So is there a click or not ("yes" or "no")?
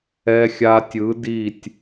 no